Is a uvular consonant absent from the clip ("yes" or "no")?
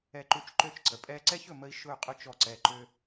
no